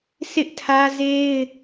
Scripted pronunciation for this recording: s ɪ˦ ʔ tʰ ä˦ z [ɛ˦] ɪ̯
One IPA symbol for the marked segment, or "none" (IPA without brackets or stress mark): e˦